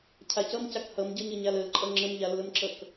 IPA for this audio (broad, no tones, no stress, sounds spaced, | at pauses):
cʰ a c ʌ m c a k h ʌ m ɟ ʌ ɲ ə ɲ a l ə l ǃʼ ʌ ŋ͡ǁ ə m ʎ a lː ə m ǁ ʌ k